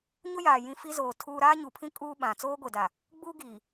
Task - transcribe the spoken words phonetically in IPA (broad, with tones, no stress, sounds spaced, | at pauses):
ɲ ʊ˦ j aː˨ j ĩ˦ f i˦ z oː˨ tʰ uː˦ ɾ aː˦ ɲ u˨ pʰ ĩ˦ kʼ uː˦ ɓ ã˨ t͡s oː˦ ɡʷ e˨ d a˨ | ɡ͡b uː˦ ɡ iː˨